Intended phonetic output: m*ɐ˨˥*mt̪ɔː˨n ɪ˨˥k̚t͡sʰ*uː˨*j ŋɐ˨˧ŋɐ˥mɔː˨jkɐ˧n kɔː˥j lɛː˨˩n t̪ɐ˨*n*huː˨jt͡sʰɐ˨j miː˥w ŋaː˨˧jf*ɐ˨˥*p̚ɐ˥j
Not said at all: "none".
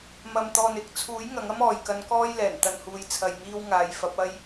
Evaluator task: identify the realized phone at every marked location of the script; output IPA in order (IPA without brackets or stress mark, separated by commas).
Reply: ɐ˨, uː˨˥, n, ɐ˨˥